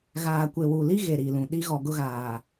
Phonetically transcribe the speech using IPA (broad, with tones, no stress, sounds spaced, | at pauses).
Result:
ɣ aː˨ kʷ e˨ w u˨ l i˦ ɣ e˨ ɾ i˨ l ũ˨ ɗ i˦ ɣ ɔ˨ ɡ ʊ˦ ɣ aː˨